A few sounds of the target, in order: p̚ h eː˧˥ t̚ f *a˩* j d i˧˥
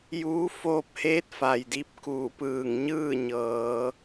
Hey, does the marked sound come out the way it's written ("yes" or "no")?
yes